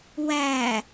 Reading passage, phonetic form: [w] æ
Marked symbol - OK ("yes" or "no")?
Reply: yes